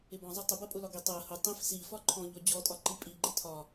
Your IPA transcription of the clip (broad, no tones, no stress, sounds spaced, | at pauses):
ɪ b ɔ̃ zˤ ʌ tˤ ʊ b ɜ pʼ ʊ l ɒ ɡ i tˤ ɜ h ʊ tˤ ĩ f s i f ɒ ǃʰ ɔ̃ ʎ ɔ d͡ʑ ɔ tʼ ɒ ǃ i pʼ i ɡ͡ǃ ɪ tʰ ɒ